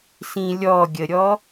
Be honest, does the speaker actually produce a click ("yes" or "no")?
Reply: no